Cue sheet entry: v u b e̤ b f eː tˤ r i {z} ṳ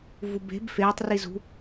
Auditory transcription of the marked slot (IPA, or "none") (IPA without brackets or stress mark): z